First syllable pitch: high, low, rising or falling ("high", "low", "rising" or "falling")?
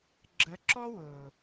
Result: rising